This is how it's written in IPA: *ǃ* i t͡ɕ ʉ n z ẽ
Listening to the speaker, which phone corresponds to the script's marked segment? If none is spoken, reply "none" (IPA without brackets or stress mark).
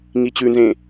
ŋ